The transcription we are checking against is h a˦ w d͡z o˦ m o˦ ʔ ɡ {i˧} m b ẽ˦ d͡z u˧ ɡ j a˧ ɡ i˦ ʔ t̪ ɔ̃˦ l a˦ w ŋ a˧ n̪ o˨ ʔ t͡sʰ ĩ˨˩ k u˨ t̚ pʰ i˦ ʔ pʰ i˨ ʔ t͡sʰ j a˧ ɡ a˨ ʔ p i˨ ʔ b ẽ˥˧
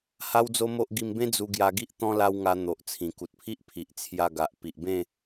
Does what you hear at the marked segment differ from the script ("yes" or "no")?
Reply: no